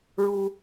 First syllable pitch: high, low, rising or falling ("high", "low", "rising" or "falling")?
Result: high